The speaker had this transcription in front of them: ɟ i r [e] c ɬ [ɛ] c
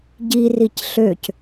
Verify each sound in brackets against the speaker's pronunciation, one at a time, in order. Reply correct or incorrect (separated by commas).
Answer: incorrect, incorrect